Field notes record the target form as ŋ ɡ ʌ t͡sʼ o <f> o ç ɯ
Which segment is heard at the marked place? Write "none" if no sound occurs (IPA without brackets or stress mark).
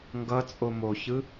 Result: m